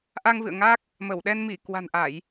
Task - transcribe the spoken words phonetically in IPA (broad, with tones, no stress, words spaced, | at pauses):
ʔa˧ŋvɨ̰˧˨ə̯ŋa˦˥k̚ | mə˧˩wɗɛ˧n mi˧˩kwa̤˨˩nʔa˧˩˨j